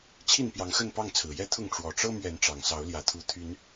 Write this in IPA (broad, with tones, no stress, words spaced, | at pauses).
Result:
t͡ɕʰi˥˨npjɑ˨˦ŋxə˥˨npɑ˥˨ŋ t͡sʰɹ̩˨˩jɛ˦t̪ʰʊ˥˨ŋ ʈ͡ʂwɔ˨˩ʈ͡ʂɤ˦ mɥɛ˨˦nʈ͡ʂɑ˨˩ŋsɑ˨˦ʊ̯ ljä˨˩ t̪ʰu˨˦ t̪ʰy˨˦n